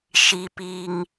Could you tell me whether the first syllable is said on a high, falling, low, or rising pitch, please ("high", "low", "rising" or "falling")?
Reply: high